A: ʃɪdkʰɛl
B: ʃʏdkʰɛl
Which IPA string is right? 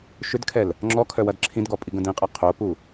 B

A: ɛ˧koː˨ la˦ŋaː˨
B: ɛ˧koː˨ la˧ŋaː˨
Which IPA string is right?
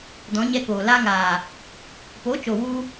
B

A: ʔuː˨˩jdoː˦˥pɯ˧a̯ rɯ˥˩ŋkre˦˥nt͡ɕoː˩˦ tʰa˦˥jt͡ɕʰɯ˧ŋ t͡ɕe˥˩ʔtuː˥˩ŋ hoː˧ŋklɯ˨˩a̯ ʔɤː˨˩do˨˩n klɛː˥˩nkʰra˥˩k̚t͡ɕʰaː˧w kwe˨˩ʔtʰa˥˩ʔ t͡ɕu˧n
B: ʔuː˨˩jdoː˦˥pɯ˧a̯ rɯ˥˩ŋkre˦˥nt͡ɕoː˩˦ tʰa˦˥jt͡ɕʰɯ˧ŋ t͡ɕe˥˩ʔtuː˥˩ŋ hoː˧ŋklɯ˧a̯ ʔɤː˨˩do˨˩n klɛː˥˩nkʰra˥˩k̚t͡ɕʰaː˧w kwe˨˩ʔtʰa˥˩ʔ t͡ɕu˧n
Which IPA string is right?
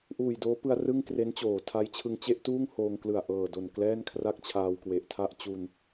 A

